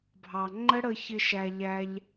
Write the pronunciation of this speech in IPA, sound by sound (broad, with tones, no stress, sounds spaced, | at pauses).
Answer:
bʱ ɑ˨ ŋ͡ǃ ə˦ ɽ ə˧ ç ɪ˧ ʃ æ˨ ʎ æ˧ ʎ